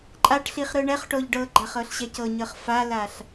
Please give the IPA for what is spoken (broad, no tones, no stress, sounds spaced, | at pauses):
ǃʼ a ʈ ɬ i χ ɾ ɯ ɳ ɛ χ ʈ o ʎ ɖ ɤ ɡ͡ǃ a χ ɤ ɬ ɕ ɛ c ɤ ɲ ɤ χ f a l a ɬ